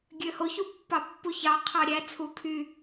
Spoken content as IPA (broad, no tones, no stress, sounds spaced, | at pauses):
ɡʲ ø h o ç u pː ɑ pː u ç ɑ qʰ ɑ ɾʲ æ t͡sʰ u kʰ y